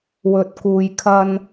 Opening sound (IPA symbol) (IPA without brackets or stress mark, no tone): w